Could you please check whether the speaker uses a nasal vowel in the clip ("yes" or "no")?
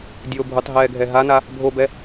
no